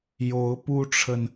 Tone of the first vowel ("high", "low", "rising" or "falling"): rising